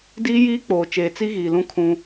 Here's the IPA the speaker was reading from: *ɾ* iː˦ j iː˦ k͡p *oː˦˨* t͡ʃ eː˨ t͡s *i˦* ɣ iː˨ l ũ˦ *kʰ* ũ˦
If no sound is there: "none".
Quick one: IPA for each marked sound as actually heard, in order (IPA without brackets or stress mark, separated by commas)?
d, oː˨, i˦, kʰ